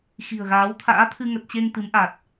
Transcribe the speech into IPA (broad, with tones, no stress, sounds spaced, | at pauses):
x i̤˨˩ ə̯ ɣ aː˨˦ w t̪ʰ a̰ː˧˥ t̪ʰ ɨ˧ ŋ ə˨˩ t̚ t͡ɕ e˧ ŋ t̪ ɨ˨˦ m ʔ a˨˩ t̚